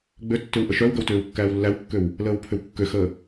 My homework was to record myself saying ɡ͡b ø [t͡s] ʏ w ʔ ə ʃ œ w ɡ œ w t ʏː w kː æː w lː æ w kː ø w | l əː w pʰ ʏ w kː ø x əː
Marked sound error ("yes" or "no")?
yes